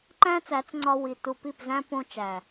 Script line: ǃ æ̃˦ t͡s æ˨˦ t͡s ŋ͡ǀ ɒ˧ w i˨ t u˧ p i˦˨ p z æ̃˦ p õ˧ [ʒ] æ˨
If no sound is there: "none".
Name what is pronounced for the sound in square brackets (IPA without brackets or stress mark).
t͡ʃ